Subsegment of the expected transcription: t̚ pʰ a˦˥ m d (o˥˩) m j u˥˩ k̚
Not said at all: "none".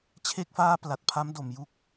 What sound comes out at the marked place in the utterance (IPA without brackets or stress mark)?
o˨˩